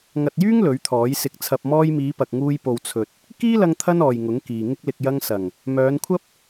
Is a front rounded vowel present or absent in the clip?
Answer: present